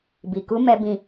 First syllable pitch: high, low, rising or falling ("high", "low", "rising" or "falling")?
low